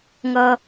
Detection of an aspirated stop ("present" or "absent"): absent